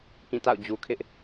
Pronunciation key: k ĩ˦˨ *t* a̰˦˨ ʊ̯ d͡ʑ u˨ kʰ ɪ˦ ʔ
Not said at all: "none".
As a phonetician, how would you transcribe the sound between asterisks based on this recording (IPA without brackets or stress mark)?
t